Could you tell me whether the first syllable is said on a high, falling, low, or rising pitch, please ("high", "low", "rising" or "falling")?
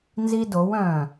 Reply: high